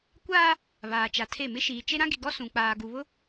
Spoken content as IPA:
kʷ aː˦ | β aː˨ t͡ʃ a˨ tʰ e˦˨ m ɪ˦ ʃ iː˨ t͡ʃ e˦ ɾ ã˦ ɡ i˨ ɡ ɔ˦ s ũ˨ k͡p aː˨ ɡ u˨ β ʊ˦

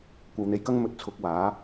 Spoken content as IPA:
kʷ ɐ˧ w n̪ e˧ j k ɐ˥ ŋ m ɵ˨ t̚ t͡sʰ ʊ˧ k̚ w aː˨˥

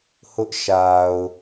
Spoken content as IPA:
h ʊ˦ ʔ ʃ a˨ ʊ̯

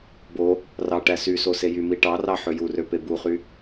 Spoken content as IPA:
b o | r ɑ ʈ æ s y s o s e j y m i ʈ ɑ r ɑ ħ ø j u r ø p e b u χ y

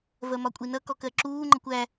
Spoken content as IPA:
v ɜ m ɒ kʷʼ i n ʌ k ɔ k ɜ ǁ uː ŋ͡ǃ ʌ kʷ æ

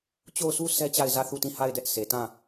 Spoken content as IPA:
t͡ɕ o˦˨ ʊ̯ s u˦ s ɛ˦ t͡ɕ a˦˨ ɪ̯ z ä˦˨ θ u˦˨ t ĩ˦˨ h a˦˨ ɪ̯ d ɛ˦ ʔ s e˨ t ã˦˨

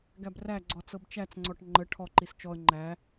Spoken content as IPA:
ɡ æ b r æ ɡ͡ǀ ɔ t͡s ɤ b t͡ʃ æ t͡s ŋ͡ǀ ɔ ʈ ŋ͡ǃ ə ʈʰ ɔ ǃ i s t͡ʃ ɔ ə̯ ŋ͡ǃ æ

